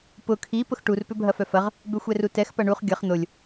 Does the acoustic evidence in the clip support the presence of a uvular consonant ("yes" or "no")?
yes